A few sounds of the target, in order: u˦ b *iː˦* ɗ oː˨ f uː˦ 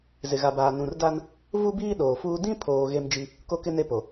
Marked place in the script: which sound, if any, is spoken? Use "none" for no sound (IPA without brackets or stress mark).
iː˦